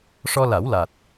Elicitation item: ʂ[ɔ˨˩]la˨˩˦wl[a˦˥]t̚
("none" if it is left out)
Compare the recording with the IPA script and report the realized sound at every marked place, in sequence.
ɔ˧, a˨˩

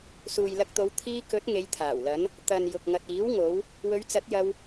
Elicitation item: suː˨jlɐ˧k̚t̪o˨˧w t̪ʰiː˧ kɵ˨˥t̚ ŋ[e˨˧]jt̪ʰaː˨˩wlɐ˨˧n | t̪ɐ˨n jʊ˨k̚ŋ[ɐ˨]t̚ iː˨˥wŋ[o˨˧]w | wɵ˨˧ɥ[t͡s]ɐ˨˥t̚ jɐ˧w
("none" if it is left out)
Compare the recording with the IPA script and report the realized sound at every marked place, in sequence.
e˨˧, ɐ˨, o˨˧, t͡s

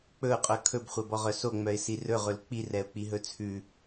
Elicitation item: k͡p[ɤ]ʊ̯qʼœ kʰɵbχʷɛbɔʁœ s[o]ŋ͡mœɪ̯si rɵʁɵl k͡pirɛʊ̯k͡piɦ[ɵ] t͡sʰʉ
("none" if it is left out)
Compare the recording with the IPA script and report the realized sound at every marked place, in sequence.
ɵ, o, ɵ

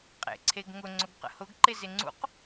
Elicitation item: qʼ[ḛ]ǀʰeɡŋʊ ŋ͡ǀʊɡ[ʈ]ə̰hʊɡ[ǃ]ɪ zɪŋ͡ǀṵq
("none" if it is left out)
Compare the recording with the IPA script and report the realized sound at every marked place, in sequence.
ḛ, q, ǃ

